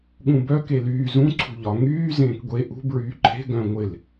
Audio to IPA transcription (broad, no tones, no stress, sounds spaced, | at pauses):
ɠ ũ b œ k e l yː z ũ ǀʰ ṳ ʎ ɒ ŋ yː z ẽː k ɡʷ e ʔ ṳ b ɹ yː ǃʰ e̤ ɡ œ̃ ŋʷ ɪ l